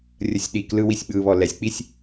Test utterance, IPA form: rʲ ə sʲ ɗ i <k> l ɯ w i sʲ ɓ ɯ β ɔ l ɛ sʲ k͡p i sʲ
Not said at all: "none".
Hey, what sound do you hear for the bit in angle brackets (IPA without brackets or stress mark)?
k